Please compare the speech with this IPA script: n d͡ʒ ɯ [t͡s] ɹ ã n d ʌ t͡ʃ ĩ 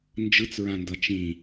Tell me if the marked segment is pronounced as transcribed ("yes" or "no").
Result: yes